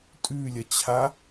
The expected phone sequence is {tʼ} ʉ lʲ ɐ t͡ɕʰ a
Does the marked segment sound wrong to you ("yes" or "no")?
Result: no